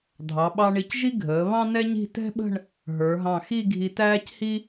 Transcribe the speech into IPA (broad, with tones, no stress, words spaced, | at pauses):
dʱɑ˩˧ɓɑ˧ ɳi˧cʒi˥ ɡʱəː˩˧ βɑ̃˥nɛ˥ɲi̤˥˧ tɛ̤˥ɓə̤˥˧ɳ | ɦə˞˩˧ɦɑ̃˧˩ xi˥˧ɡʱi˧tæː˥chi˥